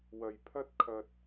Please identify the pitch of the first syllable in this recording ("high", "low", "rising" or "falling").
low